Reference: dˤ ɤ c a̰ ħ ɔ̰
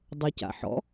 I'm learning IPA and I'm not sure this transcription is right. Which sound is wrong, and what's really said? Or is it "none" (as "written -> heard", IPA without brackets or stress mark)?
none